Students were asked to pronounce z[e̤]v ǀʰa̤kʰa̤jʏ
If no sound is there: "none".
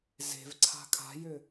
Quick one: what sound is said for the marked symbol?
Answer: e̤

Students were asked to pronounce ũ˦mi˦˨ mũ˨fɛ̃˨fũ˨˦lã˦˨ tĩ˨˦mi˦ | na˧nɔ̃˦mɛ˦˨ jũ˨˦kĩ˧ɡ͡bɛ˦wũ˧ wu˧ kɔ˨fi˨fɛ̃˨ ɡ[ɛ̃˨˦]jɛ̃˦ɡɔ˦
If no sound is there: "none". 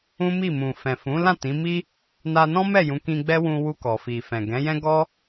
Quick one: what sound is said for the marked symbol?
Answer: ɛ̃˨˦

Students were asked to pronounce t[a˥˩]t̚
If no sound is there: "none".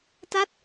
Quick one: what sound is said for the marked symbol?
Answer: a˥˩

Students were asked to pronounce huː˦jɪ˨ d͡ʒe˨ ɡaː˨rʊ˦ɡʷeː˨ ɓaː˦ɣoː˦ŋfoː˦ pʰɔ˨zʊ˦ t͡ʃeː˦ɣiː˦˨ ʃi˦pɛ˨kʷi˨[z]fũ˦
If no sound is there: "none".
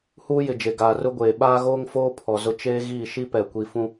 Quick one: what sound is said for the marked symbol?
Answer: none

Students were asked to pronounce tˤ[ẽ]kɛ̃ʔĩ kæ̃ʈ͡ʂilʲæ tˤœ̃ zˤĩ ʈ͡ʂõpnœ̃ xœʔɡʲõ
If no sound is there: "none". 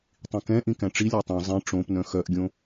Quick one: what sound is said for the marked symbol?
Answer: ĩ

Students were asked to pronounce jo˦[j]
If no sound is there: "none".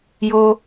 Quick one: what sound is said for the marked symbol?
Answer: none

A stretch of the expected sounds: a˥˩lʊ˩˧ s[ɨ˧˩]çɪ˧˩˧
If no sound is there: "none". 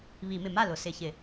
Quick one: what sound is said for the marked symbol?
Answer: ɪ˧˩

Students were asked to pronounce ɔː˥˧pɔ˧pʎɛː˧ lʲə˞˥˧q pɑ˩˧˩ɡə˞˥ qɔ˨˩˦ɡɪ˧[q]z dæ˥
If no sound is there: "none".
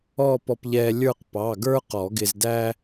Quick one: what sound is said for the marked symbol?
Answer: none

